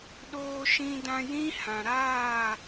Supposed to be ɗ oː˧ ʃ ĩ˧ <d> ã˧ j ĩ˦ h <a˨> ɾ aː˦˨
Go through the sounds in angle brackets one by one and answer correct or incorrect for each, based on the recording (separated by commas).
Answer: correct, incorrect